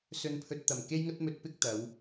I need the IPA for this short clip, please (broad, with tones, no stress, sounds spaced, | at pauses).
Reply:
s ɵ˨ n pʰ ɵ˨ t̚ t̪ ɐ˨˩ m k e˧ j ŋ ɐ˧ t̚ m ɵ˨˥ t̚ p ɪ˧ k̚ t̪ ɐ˨˧ w